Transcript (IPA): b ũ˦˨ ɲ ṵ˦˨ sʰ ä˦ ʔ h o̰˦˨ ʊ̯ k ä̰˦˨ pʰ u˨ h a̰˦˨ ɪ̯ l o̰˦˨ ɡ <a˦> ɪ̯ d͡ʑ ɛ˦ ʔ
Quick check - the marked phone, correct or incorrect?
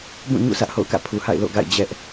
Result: incorrect